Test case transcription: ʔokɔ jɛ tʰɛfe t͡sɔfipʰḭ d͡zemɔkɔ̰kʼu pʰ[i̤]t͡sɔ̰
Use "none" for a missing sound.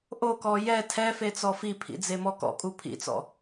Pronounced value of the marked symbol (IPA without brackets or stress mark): ḭ